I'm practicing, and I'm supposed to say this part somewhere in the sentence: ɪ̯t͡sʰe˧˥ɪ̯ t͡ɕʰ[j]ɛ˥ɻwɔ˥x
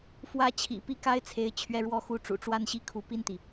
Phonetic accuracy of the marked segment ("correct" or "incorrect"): incorrect